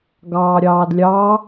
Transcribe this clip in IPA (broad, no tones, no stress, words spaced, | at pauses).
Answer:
ɡɑːɾʲɑːdlʲɑ